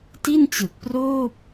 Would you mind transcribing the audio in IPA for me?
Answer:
ti˥˩nt͡ɕɯ˨˩k̚proː˥˩p̚

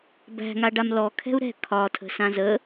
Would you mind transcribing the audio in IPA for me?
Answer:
bæ̤ŋaɖam lɔ kʰɛ̤u̯ɾɛ̤ kʰɒtʰə̤ sãzə

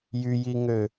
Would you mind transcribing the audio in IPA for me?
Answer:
jyjiŋø

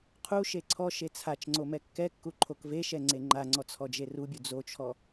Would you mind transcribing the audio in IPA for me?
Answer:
qʰu ʃeǀʰɔʃe t͡sʰat͡ʃŋ͡ǀo mɛkːɛkːu ǃʰokveʃɛ ŋ͡ǀeŋ͡ǃaŋ͡ǀɔ t͡sʰɔd͡ʒerubʲu d͡zot͡ʃʰɔ

